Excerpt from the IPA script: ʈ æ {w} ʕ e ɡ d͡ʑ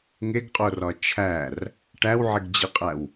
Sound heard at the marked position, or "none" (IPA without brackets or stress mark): w